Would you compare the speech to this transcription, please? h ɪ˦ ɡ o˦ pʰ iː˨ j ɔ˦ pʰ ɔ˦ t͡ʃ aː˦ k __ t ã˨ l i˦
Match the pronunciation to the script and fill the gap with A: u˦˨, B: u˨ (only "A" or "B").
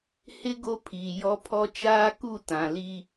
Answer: A